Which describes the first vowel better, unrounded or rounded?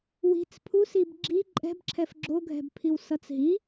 unrounded